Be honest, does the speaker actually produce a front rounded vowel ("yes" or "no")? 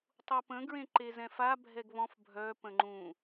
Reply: yes